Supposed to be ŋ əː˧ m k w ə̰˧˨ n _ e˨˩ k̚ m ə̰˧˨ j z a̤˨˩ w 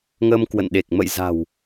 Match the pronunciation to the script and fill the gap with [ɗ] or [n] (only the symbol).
ɗ